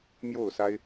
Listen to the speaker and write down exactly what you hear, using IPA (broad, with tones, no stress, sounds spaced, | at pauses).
m j o˥˨ ʊ̯ s a˦ ɪ̯